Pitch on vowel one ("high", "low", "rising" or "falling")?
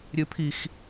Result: rising